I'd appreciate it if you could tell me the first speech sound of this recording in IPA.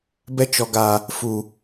b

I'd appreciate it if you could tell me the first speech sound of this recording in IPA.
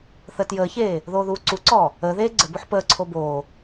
θ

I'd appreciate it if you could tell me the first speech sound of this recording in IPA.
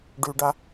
ɖ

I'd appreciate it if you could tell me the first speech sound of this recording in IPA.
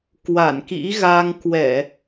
k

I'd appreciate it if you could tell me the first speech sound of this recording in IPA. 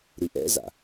ɾ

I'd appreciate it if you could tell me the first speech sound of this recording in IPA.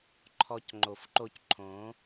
ǃʰ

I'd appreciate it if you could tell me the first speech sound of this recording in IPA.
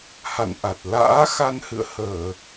h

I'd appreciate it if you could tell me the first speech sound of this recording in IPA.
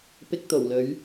p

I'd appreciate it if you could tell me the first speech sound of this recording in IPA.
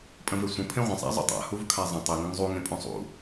pʼ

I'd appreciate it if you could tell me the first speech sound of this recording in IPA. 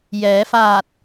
j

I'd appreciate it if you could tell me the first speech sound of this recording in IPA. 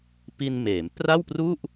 p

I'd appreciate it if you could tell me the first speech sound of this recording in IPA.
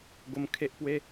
ɡ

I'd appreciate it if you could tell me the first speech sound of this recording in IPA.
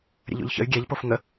ɾʲ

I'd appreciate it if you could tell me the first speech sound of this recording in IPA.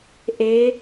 ʔ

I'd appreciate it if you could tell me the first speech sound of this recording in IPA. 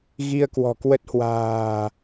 ɣ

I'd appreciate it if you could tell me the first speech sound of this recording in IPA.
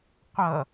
qʷ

